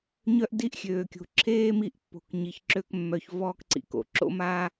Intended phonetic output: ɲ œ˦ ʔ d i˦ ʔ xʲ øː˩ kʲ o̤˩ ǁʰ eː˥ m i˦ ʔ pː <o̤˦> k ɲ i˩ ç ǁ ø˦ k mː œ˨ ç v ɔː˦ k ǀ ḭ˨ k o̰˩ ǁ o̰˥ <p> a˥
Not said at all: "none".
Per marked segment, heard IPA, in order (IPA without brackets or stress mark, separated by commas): o̤˨, m